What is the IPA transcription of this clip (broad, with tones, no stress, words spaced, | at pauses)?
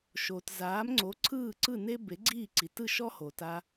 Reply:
ʃo˩tzaː˩˥mŋ͡ǀo˩˥ ǀʰɯː˥˩ǀɯ˥˩ne˥ be˩˥ɡ͡ǀiː˥˩ǀi˩ tɯ˥˩ʃɔ˥ho˩ ta˧